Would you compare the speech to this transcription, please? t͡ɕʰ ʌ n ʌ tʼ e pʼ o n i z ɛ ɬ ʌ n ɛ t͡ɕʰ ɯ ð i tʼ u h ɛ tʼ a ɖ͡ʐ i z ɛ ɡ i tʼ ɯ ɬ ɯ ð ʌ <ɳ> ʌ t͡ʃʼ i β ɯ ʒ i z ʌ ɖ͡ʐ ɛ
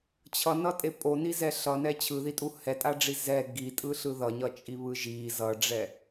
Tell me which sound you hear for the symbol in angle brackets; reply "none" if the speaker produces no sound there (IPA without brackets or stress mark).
ɲ